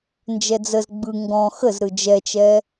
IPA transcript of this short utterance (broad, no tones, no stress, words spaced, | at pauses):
nd͡ʒɛd͡zəz ɡ͡bɯ ŋɡɔ̃ xəzɾɯ d͡ʒɛt͡ʃɛ